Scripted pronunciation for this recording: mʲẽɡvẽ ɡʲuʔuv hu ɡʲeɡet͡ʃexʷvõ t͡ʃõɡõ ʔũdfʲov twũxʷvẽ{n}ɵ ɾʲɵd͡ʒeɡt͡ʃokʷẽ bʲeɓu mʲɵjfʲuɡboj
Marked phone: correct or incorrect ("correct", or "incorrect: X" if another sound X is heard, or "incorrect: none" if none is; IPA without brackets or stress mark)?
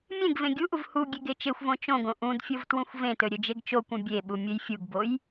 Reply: incorrect: t